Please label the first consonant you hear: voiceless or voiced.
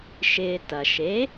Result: voiceless